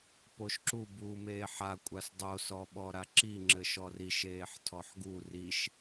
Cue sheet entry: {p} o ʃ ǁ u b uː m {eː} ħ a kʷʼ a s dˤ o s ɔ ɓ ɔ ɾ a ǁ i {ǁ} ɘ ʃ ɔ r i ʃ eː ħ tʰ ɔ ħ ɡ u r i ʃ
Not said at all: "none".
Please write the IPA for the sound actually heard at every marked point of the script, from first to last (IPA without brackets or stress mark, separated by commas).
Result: p, eː, ŋ͡ǁ